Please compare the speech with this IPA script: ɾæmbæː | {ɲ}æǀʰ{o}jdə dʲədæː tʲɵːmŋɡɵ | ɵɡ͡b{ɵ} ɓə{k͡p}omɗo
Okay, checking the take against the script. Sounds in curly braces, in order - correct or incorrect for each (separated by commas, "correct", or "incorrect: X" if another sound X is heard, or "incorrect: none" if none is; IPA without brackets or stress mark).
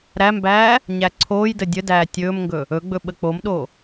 correct, incorrect: oː, correct, correct